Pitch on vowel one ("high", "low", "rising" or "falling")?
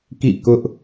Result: falling